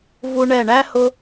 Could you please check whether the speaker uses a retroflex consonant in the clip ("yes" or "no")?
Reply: yes